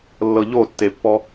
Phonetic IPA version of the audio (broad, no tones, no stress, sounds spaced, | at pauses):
lː ɤ ʎ o tː e pː ɔ